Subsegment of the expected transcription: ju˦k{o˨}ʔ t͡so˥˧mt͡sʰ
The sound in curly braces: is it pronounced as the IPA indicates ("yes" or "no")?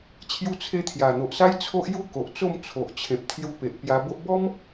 yes